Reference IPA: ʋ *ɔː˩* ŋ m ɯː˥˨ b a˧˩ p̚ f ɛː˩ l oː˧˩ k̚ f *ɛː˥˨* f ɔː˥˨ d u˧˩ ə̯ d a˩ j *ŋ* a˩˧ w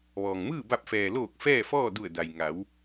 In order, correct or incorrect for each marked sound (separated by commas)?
correct, correct, correct